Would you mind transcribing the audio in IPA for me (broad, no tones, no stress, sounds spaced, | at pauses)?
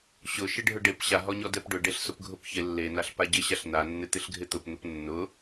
ɕ ʊ ʃ ɪ ɖʱ ʊ ɖ e p ɕ a ɦ ɔ ɲ ɔ d ɛ p ɖ ʊ ɖ e ɬ s ʊ p ɡʱ ʊ p ç ɪ lː e n a ɬ p a ɟ ɪ ɕ a ɬ n a nː ɪ t̪ ɪ ɬ ɡʱ ɪ t̪ ʊ p n̪ ʊ p nː ʊ